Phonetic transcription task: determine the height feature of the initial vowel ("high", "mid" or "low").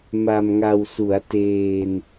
low